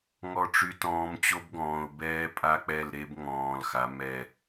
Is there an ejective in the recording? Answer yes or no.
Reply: yes